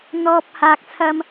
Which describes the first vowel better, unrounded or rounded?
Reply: rounded